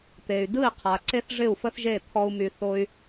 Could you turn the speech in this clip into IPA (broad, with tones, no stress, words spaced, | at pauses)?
t̪e˩y̯ dɯ˥˩i̯qʰa˩ ǀe˥θʐɪ˥˩u̯fə˥θʒe˥˩ t̪ʰɔ˥u̯my˧θo˥y̯